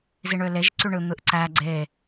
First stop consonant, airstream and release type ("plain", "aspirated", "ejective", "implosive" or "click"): click